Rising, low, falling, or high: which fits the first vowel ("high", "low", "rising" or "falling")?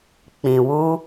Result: low